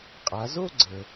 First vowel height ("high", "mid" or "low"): low